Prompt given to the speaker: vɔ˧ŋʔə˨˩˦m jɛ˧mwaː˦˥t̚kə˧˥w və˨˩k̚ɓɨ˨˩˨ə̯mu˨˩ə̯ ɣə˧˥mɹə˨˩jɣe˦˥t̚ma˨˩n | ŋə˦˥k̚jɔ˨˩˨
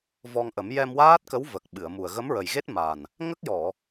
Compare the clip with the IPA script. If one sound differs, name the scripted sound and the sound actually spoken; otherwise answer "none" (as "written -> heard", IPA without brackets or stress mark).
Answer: none